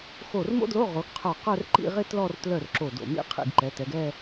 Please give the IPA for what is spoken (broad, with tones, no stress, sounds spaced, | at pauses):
x o˧˩ r m o̰˥ d l o˧˥˧ ʁ o˩˧ ɡ qʰ œ˧˩ q œ˥˧ r ǃ ḭ˥˧ ʁ ɪ˥ t l ɔ˥˧ r t l œ˧˩ r ǁ o˧˩ d o̰˧˩ m ḭ˥˧ qʰ ḭ˧˩ ɡ ǃ ɛ˩˧ t ɛ˩˧ ɡ ɛ˥˧